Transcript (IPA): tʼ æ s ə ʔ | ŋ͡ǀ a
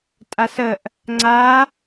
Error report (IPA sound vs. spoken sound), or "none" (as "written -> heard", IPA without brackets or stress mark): æ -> a